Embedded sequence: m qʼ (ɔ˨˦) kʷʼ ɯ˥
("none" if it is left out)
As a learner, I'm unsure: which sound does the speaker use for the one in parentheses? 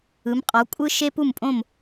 ɔ˨˦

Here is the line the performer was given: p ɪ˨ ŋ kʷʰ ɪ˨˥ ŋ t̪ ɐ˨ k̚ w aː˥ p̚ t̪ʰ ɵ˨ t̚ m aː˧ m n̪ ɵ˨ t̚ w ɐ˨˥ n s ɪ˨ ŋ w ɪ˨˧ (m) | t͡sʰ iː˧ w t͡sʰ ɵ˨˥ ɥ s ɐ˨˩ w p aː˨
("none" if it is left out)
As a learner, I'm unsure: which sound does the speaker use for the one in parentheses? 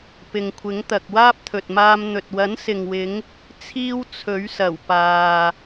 ŋ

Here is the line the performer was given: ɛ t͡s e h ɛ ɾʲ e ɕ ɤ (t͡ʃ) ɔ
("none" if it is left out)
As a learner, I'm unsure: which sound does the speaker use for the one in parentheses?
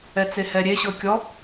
kʲ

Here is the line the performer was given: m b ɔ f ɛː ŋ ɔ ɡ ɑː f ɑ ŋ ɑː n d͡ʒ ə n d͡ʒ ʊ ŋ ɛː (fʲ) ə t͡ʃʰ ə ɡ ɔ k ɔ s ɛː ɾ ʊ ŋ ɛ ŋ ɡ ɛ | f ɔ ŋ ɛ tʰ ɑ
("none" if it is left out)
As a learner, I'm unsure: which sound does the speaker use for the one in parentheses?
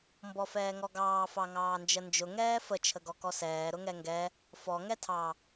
f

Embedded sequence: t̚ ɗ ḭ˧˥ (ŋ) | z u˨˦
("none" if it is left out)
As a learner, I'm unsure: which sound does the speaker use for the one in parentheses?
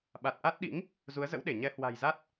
ŋ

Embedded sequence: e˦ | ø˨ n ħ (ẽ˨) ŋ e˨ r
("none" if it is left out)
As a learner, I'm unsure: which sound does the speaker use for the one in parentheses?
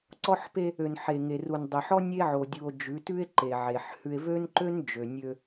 e˨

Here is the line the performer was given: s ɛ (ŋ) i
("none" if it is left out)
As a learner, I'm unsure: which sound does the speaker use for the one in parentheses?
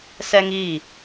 ŋ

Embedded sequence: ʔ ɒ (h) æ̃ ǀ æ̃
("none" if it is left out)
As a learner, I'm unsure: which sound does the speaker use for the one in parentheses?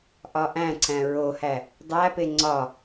ʔ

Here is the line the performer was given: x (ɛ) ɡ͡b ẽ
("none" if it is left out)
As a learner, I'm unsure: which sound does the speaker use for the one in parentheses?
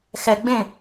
ɛ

